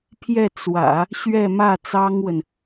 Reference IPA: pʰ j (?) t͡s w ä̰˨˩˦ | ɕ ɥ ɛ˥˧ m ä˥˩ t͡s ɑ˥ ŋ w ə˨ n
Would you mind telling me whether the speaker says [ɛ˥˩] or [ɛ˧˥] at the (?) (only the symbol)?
ɛ˥˩